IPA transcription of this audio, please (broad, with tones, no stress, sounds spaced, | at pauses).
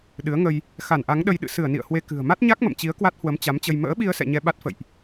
ɗ ɨ˨˦ ə̯ ŋ ə˧ j | x a˧˩ n ʔ a˨˦ ŋ ɗ ə˧ j ɗ ɨ̰˧˨ s ɨ˧˩ ə̯ n ḭ˧˨ ə̯ h w e˧ k ɨ̤˨˩ ə̯ m a˦˥ t̚ ɲ a˦˥ k̚ m ə̰˧˨ m t͡ɕ i˨˦ ə̯ k w a˦˥ t̚ h w ə˨˦ m t͡ɕ a˨˦ m t͡ɕ ə˧ j m ə̰ː˧˥ ɓ i˧ ə̯ s ɛ̰˧˨ ɲ ɛ˧ ɓ a˦˥ t̚ f ə̰˧˨ j ʔ